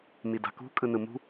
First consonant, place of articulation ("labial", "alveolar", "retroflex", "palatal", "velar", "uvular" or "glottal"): labial